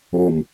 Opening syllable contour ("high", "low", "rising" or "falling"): low